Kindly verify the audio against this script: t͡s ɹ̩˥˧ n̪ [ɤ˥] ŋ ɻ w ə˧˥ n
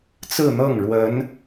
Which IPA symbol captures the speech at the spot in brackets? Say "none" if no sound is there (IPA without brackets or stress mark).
ɤ˥˩